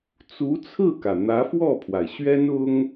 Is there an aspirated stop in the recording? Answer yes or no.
yes